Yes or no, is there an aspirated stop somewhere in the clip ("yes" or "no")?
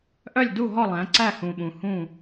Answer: no